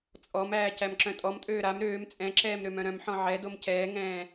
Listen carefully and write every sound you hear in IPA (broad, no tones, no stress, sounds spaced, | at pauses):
t͡sʼ ɔ m æː c æ m ǁ œ̃ tʼ ɔ m tʼ øː ɾ a m ɾ øː m t͡sʼ ɛ̃ ǁ ɛː m ɾ ø m œ̃ ɾ œ̃ m ħ ɔ̃ ʕ ɛ d o m c ɛː ŋ ɛ̃ː